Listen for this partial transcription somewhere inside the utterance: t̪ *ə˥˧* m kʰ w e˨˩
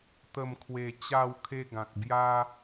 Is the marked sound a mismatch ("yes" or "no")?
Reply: yes